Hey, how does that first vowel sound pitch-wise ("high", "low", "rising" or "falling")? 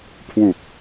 low